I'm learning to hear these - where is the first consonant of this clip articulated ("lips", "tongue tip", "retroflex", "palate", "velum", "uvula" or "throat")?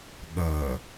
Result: velum